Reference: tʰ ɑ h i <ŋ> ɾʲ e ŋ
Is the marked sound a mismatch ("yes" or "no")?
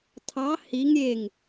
no